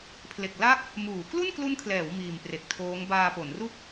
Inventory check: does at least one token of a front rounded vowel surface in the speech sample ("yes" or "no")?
no